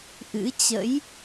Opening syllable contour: rising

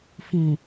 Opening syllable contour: low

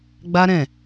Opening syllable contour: high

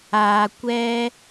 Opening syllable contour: low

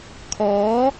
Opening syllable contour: rising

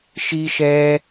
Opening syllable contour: high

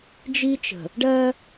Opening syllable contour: high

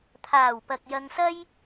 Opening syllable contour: low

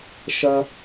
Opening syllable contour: high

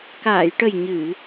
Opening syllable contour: low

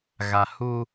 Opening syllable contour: low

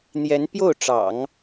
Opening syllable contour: rising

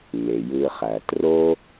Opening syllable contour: low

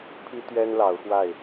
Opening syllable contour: high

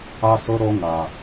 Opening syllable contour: high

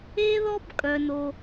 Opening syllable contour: high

